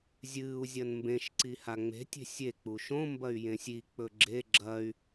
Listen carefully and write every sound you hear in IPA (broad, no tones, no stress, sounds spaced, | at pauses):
zʲ ɨː u̯ zʲ ɐ n m b ẽ ʃ ǀ i h a ŋ͡m e̤ tʲ e̤ sʲ e k͡p u ʃ õ m b ɐ y̯ j ẽ sʲ i k͡p ɵ ɡ͡ǁ e ɡ͡ǁ ɐ y̯